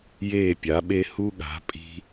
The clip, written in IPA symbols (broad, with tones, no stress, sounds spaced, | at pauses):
j eː˧˩ pʲ a˩˧ ɓ e˧ h u˧ ɠ a̤˩˧ pʼ i̤˧